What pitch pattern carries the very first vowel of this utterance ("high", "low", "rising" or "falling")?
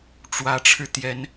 rising